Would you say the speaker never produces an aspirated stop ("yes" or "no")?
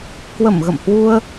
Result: yes